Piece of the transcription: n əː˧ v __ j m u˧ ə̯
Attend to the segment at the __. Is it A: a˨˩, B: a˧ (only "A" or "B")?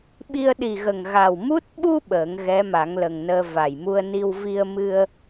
A